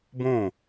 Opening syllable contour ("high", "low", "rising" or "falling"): falling